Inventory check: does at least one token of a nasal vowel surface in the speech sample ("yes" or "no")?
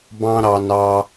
yes